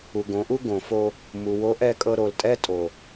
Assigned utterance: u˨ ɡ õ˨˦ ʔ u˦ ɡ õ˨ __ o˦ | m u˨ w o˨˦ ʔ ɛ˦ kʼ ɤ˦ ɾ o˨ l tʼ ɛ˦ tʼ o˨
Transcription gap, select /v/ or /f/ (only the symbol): f